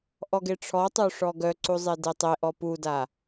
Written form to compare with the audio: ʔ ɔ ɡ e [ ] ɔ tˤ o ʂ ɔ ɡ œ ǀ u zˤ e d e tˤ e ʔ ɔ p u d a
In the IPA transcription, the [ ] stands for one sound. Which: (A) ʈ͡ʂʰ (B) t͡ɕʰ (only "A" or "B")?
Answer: A